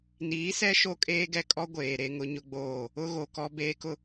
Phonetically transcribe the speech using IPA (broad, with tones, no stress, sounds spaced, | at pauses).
n iː˨˦ s ɛ˦ ʃ o˦ kʼ eː˦ ɡ ɛ˦ kʼ ɔ˦ ɡʷ eː˨ ɾ e˦ ŋ ʊ˦ ɲ ʊ˦ ɡ͡b oː˦˨ | ʊ˦ ɣ o˨ k ɔ˦ b eː˦ k ʊ˦